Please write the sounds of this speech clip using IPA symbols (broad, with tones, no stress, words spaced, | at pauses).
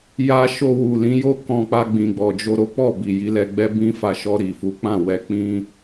ja˧ ʃo˧wu˨lĩ˨˦jo˦˨ kɔ̃˧k͡pa˧ ɡ͡bĩ˨ɡ͡bɔ˨d͡ʒo˧ ɾo˦k͡pɔ˦˨ bi˨ji˨˦lɛ˧ɡ͡bɛ˦ bĩ˧fa˨ ʃɔ˧ ɾi˨fu˨˦ k͡pã˦˨wɛ˧k͡pĩ˦